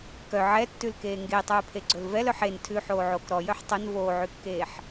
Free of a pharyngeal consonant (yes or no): no